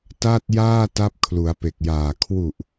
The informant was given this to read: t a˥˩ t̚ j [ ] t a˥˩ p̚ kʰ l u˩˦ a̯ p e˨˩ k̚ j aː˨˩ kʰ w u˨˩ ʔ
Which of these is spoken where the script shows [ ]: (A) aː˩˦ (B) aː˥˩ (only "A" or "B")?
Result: B